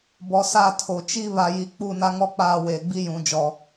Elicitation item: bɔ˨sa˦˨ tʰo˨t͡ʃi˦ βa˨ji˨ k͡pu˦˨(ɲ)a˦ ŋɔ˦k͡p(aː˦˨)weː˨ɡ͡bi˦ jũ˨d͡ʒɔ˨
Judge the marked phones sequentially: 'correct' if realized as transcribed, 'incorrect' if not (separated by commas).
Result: incorrect, correct